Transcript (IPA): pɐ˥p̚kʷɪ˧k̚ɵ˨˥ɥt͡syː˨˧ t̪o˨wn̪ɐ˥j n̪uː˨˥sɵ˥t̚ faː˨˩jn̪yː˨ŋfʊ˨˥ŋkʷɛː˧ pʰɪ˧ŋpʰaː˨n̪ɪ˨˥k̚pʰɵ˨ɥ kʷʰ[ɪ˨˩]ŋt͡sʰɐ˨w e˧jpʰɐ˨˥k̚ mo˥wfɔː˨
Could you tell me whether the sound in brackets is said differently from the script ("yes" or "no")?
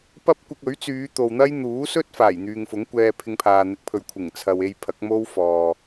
no